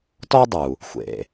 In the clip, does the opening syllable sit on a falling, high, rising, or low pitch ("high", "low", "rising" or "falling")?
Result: high